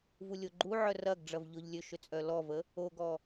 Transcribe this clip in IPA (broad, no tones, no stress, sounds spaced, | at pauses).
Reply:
v u lʲ o ɡ͡ǃ u ʕ œ r ɐ ɡ ɖ͡ʐ ɐ v ʎ ʊ ʎ lʲ ø ʃ ø t͡sʼ œ l ɔ v ə | o ɡ ɔ